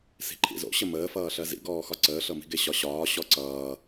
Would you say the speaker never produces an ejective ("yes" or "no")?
yes